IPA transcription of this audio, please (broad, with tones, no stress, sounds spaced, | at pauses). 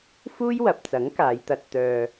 f uː˥ j w ɐ˨ p̚ t͡s ɐ˨˥ ŋ k aː˨˧ j t̪ ɐ˧ t̚ t̪ œː˧